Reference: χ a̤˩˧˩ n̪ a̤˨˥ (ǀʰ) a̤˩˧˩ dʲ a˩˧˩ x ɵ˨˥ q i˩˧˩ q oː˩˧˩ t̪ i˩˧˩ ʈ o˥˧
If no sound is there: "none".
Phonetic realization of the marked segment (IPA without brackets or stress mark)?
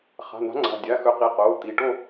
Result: ŋ͡ǀ